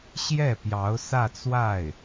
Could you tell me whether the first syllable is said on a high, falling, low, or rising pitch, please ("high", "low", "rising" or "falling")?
falling